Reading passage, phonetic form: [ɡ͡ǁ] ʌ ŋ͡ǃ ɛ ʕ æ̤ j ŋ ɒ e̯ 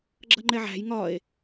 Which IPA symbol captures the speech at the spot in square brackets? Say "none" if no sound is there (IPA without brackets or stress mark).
ɡ͡ǁ